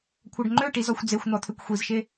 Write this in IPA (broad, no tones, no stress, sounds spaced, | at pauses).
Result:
kʷʰ œ ɖ ŋ͡ǃ ø ʈ i z ɔ xʷ d͡z e xʷ n̪ ɔ t̪ʰ ø kʷ xʷ i z ʃ e